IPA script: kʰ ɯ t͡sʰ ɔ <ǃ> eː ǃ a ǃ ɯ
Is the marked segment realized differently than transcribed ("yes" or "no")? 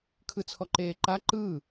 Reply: no